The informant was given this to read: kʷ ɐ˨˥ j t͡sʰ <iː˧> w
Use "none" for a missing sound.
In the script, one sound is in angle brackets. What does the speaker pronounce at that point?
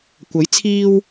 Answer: iː˧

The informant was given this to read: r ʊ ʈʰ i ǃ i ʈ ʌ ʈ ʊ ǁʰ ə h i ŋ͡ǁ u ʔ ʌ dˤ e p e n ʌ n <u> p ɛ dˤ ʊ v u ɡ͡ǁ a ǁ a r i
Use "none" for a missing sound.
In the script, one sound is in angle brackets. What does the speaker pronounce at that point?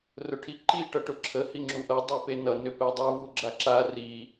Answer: ʏ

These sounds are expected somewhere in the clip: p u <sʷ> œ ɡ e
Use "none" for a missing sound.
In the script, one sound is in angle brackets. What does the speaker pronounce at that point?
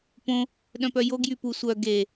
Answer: sʷ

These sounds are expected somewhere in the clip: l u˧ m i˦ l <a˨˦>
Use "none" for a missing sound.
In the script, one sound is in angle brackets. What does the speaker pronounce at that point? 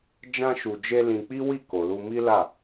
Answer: a˦˨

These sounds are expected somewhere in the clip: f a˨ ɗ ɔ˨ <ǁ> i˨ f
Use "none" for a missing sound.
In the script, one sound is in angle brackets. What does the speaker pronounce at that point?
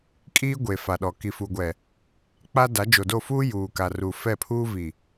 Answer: k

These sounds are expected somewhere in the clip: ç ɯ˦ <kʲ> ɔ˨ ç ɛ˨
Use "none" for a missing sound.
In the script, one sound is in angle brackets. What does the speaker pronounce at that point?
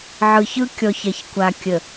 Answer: kʲ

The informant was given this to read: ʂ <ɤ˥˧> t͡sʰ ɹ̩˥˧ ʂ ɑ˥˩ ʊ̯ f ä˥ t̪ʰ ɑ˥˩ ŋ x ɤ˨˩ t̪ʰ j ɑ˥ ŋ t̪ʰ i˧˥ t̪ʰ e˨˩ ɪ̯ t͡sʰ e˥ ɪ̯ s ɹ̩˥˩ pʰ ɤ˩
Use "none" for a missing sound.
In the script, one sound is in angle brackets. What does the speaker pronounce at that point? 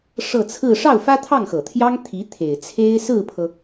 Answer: ɤ˥˧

